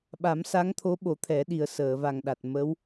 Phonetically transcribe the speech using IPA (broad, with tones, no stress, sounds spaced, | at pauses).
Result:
ɓ a˨˩˦ m s a˧˥ ŋ t̪ʰ o˧˥ ɓ o˨˩˦ t̪ʰ ɛ˨˩˦ ɗ i˨˩ ə̯ s əː˨˩˨ v a˨˩ ŋ ɗ a˨˩ t̚ m ə˧˥ w